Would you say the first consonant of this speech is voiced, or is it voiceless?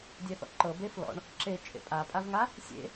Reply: voiced